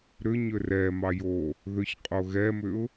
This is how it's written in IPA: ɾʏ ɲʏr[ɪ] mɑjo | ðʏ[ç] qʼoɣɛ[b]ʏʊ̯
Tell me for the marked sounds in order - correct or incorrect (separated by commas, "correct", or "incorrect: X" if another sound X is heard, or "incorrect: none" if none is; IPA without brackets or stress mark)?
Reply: incorrect: ɛ, correct, incorrect: m